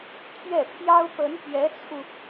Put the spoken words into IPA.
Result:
t̪ʰ ɥ ɛ˥˩ pʰ j ɑ˥ ʊ̯ p ə˧˥ n p ɥ ɛ˧˥ t͡sʰ u˧

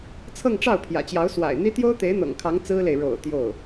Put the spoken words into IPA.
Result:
t͡sʰ ɤ˥˧ ŋ ʈ͡ʂ ɑ˥˩ ʊ̯ pʰ j ä̰˨˩ t͡ɕ j ɑ˧˥ ʊ̯ s w a̰˨˩ ɪ̯ n̪ i˥ t̪ j o˥ ʊ̯ t̪ e˧˥ ɪ̯ n̪ ɤ̰˨˩ ŋ kʰ ɑ˧˥ ŋ t͡s ɹ̩˥ l e˨ ɪ̯ ɻ o̰˨˩ ʊ̯ t̪ j o˥˩ ʊ̯

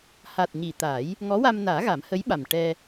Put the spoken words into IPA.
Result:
h a˨˩ t̚ ɲ i˨˩˨ t̪ aː˨˩˦ j | ŋ ɔ˧˥ w a˧ m n aː˨˩˦ ɣ a˨˩˦ m h ə˧˥ j ɓ a˨˩ m ʈ ɛ˧

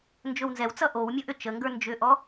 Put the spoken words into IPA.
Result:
n d͡ʒ ɵ w n z ɛ w t͡s ʌ ʔ o w mʲ ɔ ʔ ʏ t͡ʃ ə ŋ ɡ ə˞ n d͡ʒ ʏ ʔ ɔ

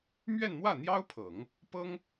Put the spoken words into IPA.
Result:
m ɥ ɛ˥˧ n m w ä˥˩ n̪ j ɑ˥ ʊ̯ pʰ ɤ˨˩˦ ŋ | p ɤ˥ ŋ

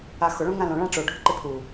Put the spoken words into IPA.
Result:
a x ʊ ɭ õ ŋ ã l õ ɭ ã ʈ͡ʂ o ɖʱ ʊ ǃ ɪ pʰ u

